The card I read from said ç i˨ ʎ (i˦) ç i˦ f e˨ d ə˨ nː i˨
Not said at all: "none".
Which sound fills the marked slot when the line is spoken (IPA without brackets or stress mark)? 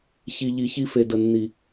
i˨